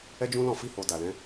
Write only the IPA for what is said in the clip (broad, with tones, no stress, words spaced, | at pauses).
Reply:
ɛ˦d͡ʒũ˦lɔ̃˦˨ fi˧ho˨ da˨lɛ̃˨˦